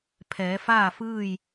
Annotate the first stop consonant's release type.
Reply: aspirated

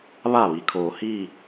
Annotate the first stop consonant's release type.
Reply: aspirated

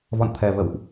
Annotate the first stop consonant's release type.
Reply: aspirated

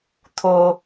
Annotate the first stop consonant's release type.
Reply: aspirated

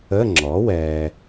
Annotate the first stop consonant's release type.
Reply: click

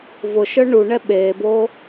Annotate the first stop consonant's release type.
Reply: implosive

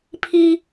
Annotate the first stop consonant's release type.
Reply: aspirated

